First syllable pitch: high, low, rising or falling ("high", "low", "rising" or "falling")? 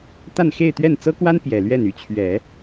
falling